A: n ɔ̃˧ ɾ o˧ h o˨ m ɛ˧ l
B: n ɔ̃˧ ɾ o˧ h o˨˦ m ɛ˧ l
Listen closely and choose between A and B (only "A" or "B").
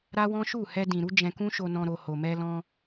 A